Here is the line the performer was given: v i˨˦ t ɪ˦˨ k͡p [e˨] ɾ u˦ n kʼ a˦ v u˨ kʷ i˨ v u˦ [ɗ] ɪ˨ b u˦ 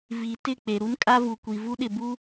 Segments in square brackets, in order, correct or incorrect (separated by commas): correct, correct